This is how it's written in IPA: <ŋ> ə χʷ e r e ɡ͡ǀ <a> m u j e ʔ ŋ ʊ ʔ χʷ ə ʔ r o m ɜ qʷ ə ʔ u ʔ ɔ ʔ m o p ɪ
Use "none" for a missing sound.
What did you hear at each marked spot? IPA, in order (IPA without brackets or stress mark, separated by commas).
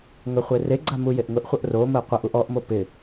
ŋ, a